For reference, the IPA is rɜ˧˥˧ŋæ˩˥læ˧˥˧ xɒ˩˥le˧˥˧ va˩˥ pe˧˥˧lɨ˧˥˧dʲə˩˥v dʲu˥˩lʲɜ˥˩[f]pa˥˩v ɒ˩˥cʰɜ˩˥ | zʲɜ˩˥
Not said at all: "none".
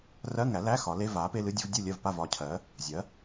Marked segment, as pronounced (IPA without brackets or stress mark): v